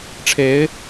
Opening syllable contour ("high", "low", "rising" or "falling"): rising